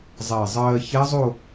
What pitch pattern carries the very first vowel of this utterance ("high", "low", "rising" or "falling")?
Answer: low